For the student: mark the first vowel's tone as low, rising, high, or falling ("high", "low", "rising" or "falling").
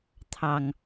low